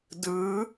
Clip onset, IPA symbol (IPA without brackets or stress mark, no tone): d